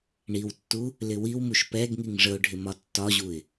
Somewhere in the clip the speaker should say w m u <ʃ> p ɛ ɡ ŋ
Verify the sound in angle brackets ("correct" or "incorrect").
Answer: correct